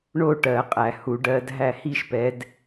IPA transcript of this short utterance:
ɳo˥˩ ʈɜ˨˩˦qʼæ˨˩˦hu˨˦ ɖɜ˨˦dɦæ˥˩ hi˥˩ʃpɛ˨˦d

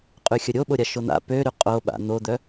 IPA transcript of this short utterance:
qʼyxʲəɾʲoɓo ɾʲaʃon̪a̰ pøɾy qʼo ɓa̰ n̪od̪œ

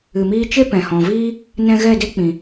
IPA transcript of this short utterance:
ɨ˨miː˧t͡ʃe˦ pɛ̃˨hɔ̃˨viː˦ | nɛ̃˧ ɣɛ˦˨de˦k͡pĩ˨

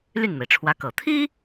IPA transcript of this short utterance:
ly˥˩nme˩ɪ̯ʈ͡ʂʰwä˧˥kɤ˨˩ t̪ʰi˥

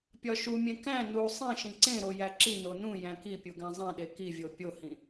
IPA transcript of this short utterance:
pʲɒʃumʲẽ kæ̃ nu sˤĩʃĩ ǀẽɾo jæǁino nũ jæ̃kipʲu ɡæ̃zˤẽɗe kivʲo pʲohĩ

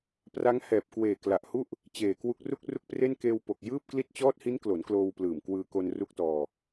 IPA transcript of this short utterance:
pra˦˥ŋ hɛː˨˩p̚kweː˨˩kla˨˩ʔhu˥˩ʔ | t͡ɕeː˨˩kwu˦˥k̚ ru˥˩k̚ru˥˩k̚pre˥˩n keː˧wpo˨˩k̚ jɯː˥˩p̚kli˥˩t̚ t͡ɕɔː˦˥t̚hi˦˥nklo˩˦n kloː˧wplɯː˨˩m kwɯː˧ko˧nru˦˥k̚tɔː˧

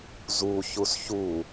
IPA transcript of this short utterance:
zuçus çu

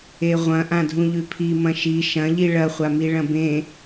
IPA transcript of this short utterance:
eʁʷɐ̃ ʔãdʱũʎʉpʰi mɐ̃ʃi ʃɐ̃ʎi ɭɐχʷami ɭɐ̃bẽ

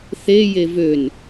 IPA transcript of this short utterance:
θe jevøn

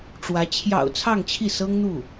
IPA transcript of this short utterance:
ʈ͡ʂwä˧˥ t͡ɕʰjɑ̰˨˩ʊ̯ t͡sʰɑ˥˧ŋt͡ɕʰi˥˩sɤ˥ŋ n̪u˥˩

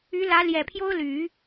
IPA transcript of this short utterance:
y˧˥lä˧˥ ljɛ˨˩pʰjo˥ʊ̯ly˨˩˦

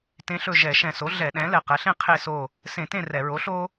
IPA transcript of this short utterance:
tẽ˧˥ɬɵ˦˨ ʒɛ˧˩˧ ʃɛ̃˨˩so˩˥ ɮɛ˧˩˧ɗɛ̃˩˥ lɛ˨˩qɛ˩˥ɬẽ˥ qʰe˦˨so˦˨ | sẽ˧˩˧tẽ˦˨ rɛ˧˩˧ ɹo˩˥ ɬo˥

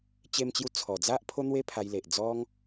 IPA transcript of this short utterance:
t͡ɕe˧mt͡ɕju˧ t͡sʰɔ˨˩d͡za˦ʔ pʰo˦n̪we˦ pʰa˧jle˨ʔ d͡zɔ˦ŋ

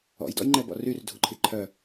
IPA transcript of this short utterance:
ɔ̰jdɔ̰jŋ͡ǃɛbɔ̰r yrdʱuǃʰi ǃʰœ

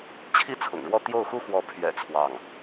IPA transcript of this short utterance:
t͡ɕʰi˥˩ t͡sʰʊ̰˨˩ŋɻwɔ˥˧ t̪jo˥˩ʊ̯xu˥xwɔ˧˥ pʰɥɛ̰˨˩ t͡sʰwɑ˥˩ŋ

